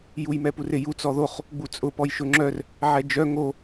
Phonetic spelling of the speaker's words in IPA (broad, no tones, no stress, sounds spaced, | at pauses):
j u j m ɛ p u r ɪ j u t͡s ɔ ð o χ | ɡ͡b u t͡sʼ ʊ p ɔ j ʃ ʊ ŋ͡ǁ œ r | ʕ ɛ d͡ʒ œ ŋ o